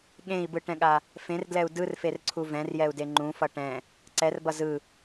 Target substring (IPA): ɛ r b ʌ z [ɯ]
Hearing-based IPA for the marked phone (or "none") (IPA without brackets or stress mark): ɯ